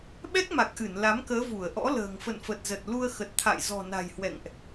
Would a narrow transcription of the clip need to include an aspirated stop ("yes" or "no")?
yes